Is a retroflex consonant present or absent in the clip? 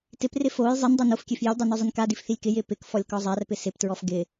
absent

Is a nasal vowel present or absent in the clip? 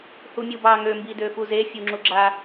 absent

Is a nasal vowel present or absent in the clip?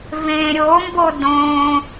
present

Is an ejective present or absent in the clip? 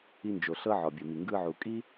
present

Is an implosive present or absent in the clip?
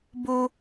absent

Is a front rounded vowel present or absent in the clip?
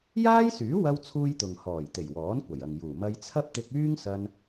present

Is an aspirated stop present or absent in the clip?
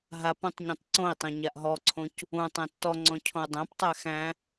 present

